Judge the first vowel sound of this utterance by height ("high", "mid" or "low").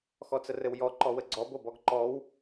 mid